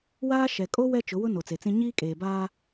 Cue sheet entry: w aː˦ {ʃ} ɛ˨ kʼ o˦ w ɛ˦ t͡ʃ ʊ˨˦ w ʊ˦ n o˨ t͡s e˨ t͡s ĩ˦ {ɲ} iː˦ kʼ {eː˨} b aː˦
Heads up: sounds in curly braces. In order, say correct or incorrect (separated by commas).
correct, correct, correct